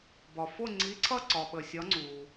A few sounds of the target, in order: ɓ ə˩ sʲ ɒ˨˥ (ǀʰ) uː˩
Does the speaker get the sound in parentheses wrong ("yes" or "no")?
yes